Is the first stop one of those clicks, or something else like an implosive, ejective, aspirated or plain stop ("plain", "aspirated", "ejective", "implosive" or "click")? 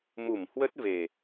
plain